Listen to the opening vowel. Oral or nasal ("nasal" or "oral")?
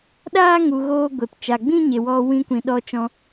oral